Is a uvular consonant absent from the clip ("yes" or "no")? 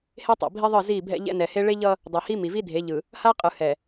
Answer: no